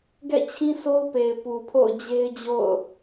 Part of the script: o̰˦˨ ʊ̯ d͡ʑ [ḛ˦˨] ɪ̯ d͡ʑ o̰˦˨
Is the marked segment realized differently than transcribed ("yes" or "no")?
yes